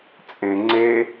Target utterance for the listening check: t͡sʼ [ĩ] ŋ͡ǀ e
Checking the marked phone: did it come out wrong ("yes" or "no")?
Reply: yes